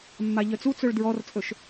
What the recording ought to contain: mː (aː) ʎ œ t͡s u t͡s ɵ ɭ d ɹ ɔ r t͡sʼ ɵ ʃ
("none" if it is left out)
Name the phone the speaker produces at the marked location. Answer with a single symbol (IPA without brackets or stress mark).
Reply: a